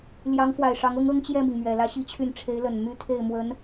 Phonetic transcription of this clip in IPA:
l j ɑ˧˥ ŋ f w a˨˩ ɪ̯ ʂ ɑ˧˥ ŋ ɤ˥ ŋ ɤ˥ ŋ t͡ɕ j ɛ˥˩ m i˩ ŋ m ɥ ɛ˨˩ l ä˥ ɕ i˥ t͡ɕʰ y˥˩ n ʈ͡ʂʰ e˧˥ ɪ̯ l ə˨˩ n m y˥ t̪ʰ e˥˩ ɪ̯ m w ə˧˥ n

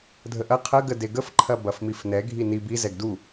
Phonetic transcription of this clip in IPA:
dʱ ə ʔ ɐ qʰ ɐ ɡ ə d e ɡ ə f ǃʰ ɐ b ɐ f m i f n ɛ ɡʱ i n i b i z ɛ ɡ d u

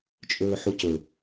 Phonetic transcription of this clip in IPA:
t͡ʃʼ ɵː ħ u c ɵ

